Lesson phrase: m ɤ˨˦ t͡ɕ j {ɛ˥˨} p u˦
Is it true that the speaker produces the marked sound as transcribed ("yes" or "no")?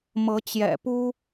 no